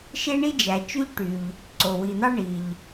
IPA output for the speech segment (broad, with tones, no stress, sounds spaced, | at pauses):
ʃ e˥ ɳ i˥ d͡ʒ æ˩ t͡ʃ y˥ ʎ ʈ y˩ ʎ | ǀ o˩ w i˩ n̪ ɑ˥ ɳ i˩ ʎ